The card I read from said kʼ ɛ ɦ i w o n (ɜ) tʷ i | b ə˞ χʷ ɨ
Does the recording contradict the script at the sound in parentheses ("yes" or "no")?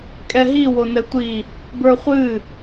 yes